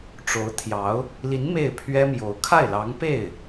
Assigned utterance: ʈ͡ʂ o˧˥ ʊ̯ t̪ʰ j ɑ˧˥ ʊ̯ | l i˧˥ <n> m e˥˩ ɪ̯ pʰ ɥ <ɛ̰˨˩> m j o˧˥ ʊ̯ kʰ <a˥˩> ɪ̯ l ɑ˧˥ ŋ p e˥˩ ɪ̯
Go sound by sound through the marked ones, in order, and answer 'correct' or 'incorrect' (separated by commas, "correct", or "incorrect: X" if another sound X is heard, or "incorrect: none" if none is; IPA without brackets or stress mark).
correct, incorrect: ɛ˥, correct